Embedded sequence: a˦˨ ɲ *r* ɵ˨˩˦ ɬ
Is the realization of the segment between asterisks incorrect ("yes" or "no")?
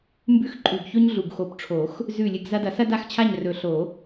no